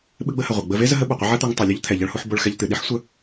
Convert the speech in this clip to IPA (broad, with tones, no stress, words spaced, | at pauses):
ɓɨ˧ɡ͡bə˧hə˩ ʁʷɐ˩ɡ͡bə˧ve˥ zə˥ɦə˥ɓɐ˩qʷə˥ ʕɐ˥t̪u˧ŋ tˤu˩lʲo˥ʎt̪ʰɛ˩ ʎɐ˧ɭhu˧ħ bo˧ɭxɛ˧ʎt̪ɨ˩ ɗi˥ħsʷə˧